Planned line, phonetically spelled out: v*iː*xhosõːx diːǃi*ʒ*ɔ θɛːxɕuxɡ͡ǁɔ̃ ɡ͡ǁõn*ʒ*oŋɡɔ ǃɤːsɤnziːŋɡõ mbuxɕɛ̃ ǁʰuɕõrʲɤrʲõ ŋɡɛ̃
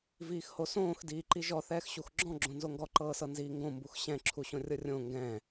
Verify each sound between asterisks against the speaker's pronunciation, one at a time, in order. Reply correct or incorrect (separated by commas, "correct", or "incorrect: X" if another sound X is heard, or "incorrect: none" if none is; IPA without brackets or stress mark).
correct, correct, incorrect: z